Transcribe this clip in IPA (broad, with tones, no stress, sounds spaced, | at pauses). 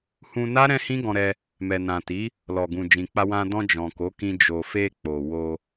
h ũ˧ n a˦ ɾ ɛ̃˦ h ĩ˦ ɡ ɔ̃˧ ɾ ɛ˧ | m ɛ˨ n ã˨ t i˨˦ | l ɔ˨ ɡ ũ˨ d͡ʒ ĩ˨ k͡p a˧ w ã˧ d ɔ̃˧ d͡ʒ ɔ̃˨ k o˨˦ k ĩ˧ d͡ʒ o˨ f e˧ k͡p o˨ w o˧